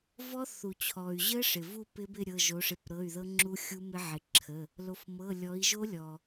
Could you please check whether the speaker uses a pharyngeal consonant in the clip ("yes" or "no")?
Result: yes